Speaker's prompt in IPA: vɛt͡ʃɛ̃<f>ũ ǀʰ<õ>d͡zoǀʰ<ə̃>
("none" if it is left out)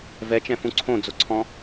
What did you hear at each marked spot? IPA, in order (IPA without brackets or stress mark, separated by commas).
f, õ, ɔ̃